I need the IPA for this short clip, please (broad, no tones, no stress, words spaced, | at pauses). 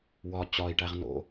wɒ t͡ɕɒi̯ʈæʁ no̰